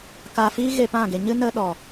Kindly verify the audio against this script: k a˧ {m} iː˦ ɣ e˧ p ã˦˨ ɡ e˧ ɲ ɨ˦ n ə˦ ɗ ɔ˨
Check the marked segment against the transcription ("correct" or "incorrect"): incorrect